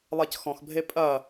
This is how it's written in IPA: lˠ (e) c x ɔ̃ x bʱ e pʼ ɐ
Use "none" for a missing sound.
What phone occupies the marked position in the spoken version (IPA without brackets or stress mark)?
e